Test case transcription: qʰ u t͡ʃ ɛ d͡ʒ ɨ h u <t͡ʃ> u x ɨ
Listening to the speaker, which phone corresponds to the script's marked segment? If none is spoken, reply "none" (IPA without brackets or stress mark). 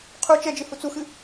t͡s